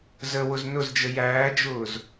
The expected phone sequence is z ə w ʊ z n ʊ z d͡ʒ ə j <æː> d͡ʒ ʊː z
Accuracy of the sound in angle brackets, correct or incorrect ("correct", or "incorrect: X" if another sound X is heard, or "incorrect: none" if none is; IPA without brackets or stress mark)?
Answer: correct